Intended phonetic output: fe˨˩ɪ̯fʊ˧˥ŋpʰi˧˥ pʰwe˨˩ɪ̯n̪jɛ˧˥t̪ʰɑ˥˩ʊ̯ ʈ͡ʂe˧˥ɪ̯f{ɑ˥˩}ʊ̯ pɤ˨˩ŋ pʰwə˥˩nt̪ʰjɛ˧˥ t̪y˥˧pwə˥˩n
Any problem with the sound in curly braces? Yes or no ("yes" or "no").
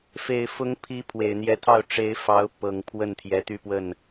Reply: yes